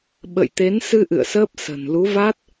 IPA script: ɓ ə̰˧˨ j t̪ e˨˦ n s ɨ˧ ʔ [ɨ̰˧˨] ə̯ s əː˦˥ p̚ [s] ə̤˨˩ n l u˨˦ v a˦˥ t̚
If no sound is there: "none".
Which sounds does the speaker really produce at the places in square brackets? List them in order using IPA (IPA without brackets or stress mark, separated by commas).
ɨ̰˧˨, s